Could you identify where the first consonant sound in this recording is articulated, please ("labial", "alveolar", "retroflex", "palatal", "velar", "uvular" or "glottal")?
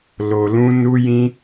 alveolar